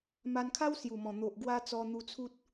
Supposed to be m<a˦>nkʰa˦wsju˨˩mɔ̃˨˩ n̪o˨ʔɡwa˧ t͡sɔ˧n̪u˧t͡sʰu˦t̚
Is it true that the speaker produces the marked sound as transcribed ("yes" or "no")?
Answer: no